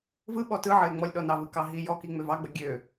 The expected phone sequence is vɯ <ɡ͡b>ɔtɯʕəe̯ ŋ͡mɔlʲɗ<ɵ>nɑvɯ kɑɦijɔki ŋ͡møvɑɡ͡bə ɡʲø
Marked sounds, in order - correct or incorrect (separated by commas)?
incorrect, incorrect